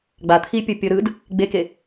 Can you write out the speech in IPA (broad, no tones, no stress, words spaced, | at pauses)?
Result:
ɡ͡bat̪ʰipʲɤ pʲɤɾɯd | ɡ͡beke